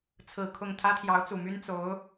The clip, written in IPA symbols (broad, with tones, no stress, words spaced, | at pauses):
t͡sʰɹ̩˨˩ kʰʊ˥˩ŋ t̪ʰä˥t̪ʰjɑ˧˥ʊ̯t͡su˨˩my˥n t͡so˧˥ʊ̯